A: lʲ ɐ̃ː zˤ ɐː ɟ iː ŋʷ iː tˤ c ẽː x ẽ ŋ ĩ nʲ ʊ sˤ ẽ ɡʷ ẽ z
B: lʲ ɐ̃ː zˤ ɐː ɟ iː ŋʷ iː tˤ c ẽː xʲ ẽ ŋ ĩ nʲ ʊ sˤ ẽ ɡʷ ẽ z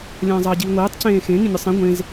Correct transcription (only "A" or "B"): A